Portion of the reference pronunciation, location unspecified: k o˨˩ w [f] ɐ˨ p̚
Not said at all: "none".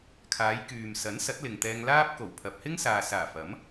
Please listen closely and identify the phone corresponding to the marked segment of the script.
pʰ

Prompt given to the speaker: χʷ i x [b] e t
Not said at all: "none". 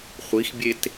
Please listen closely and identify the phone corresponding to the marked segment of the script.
bʲ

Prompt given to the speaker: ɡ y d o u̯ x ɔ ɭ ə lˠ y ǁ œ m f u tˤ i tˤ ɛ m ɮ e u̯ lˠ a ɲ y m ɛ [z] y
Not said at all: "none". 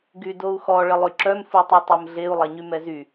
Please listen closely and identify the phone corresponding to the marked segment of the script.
z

